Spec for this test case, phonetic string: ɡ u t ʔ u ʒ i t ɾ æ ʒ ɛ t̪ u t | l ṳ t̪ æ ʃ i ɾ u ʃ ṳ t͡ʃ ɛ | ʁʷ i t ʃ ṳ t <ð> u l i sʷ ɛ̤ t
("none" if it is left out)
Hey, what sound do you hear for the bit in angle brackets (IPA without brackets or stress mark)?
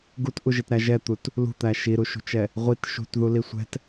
ð